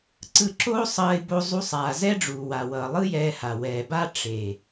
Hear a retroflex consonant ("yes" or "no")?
yes